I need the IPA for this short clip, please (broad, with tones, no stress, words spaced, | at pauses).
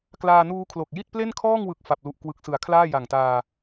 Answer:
klaː˧nuː˦˥kʰlo˨˩k̚ ji˥˩t̚ple˥˩nkʰɔː˥˩ŋwɯ˨˩k̚ fa˨˩p̚lu˨˩ʔ kwɯ˨˩k̚sɯ˩˦a̯ kʰlaː˥˩ja˨˩ŋtaː˧